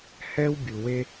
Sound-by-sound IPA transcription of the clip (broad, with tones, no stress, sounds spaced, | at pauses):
h ɛ˥ w bʲ u˩ w e˦